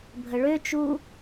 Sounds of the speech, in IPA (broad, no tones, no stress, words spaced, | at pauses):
bʱəɭøt͡ʃu